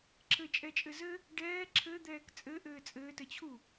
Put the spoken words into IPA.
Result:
ǁʰ ɘ t͡ʃʼ ɛ t͡ʃʼ ɘ z ɘ | ɖ ɛː ǁʰ ɘ d̪ ɛː k t͡sʼ ɘ ʔ ɘː t͡sʼ ɘː t ɘ t͡ɕʰ u

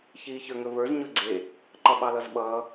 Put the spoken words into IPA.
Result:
ç iː ç ə˞ ŋ ɵ v ə˞ z ɲ ɵ ɡ͡ǀ e | ǃ ʌ ɓ ɑ l ʌ z ɓ ʌː

